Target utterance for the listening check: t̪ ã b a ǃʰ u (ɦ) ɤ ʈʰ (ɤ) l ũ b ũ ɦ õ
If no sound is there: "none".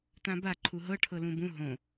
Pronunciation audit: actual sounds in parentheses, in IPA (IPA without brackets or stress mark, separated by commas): ɦ, ɤ